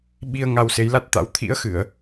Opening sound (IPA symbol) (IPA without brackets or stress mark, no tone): ɓ